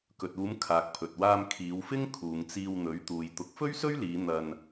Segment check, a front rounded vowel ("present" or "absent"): absent